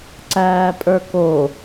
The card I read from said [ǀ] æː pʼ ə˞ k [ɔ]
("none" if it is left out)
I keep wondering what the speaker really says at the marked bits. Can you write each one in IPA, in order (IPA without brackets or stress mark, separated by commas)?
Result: ǀ, o